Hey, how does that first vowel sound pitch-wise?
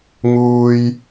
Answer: low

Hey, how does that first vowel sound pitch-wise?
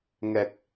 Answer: low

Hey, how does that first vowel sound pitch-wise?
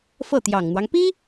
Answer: falling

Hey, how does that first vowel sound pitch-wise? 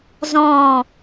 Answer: falling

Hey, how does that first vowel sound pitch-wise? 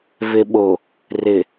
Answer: low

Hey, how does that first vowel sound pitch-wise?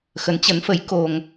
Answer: rising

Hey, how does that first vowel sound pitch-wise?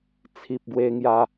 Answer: low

